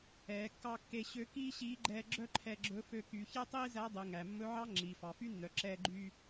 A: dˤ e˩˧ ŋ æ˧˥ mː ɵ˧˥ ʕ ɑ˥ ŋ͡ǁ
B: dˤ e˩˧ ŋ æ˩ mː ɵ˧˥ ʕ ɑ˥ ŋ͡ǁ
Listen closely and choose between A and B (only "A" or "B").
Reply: B